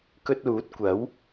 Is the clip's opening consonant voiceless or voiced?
voiceless